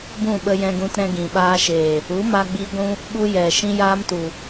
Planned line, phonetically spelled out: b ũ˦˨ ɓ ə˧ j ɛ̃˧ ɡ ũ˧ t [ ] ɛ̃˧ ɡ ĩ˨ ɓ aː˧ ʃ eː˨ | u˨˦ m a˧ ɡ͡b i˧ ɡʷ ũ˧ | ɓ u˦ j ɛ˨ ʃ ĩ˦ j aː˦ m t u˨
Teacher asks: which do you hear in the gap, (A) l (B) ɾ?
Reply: B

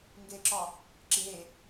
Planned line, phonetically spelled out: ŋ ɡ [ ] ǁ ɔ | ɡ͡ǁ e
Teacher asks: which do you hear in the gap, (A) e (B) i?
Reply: A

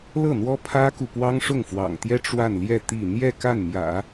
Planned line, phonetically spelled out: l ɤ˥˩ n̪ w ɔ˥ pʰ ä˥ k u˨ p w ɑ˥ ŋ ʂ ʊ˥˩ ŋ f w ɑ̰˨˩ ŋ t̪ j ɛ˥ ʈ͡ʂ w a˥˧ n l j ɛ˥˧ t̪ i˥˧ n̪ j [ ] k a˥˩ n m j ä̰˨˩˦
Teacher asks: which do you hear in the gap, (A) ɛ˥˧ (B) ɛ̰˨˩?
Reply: A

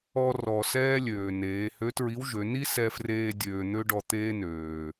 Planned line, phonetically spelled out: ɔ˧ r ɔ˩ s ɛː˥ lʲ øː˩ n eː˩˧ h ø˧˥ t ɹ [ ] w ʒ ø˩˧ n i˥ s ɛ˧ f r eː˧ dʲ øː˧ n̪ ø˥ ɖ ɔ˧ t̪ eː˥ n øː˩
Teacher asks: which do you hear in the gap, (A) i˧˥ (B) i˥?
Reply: A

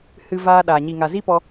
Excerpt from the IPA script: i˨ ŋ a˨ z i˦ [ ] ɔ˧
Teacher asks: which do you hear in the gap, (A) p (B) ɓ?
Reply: A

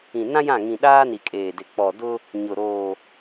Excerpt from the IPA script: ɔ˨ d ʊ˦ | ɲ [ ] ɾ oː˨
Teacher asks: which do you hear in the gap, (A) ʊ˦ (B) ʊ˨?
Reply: B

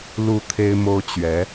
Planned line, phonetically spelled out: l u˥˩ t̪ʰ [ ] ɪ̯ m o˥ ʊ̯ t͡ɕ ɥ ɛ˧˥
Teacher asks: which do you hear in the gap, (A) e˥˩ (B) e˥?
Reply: B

